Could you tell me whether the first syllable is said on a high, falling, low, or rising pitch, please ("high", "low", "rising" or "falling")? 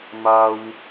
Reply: high